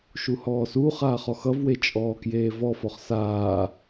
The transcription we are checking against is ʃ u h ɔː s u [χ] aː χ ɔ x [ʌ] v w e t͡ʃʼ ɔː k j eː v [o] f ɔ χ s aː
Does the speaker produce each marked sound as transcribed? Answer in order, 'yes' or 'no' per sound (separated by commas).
yes, yes, no